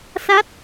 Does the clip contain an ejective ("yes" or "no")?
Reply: no